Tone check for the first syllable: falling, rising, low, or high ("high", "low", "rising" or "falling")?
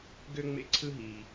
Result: high